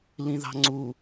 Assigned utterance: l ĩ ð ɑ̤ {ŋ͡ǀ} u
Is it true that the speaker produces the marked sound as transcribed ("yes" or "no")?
yes